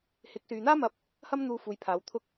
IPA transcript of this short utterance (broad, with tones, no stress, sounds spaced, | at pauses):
h ɪ˨˥ k̚ s yː˨ n̪ aː˥ m ɐ˧ p̚ | h ɐ˥ m n̪ uː˧ f uː˨ j pʰ aː˨˧ w t̪ʰ ʊ˥ k̚